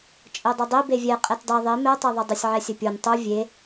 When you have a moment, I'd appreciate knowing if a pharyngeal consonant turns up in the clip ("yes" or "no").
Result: yes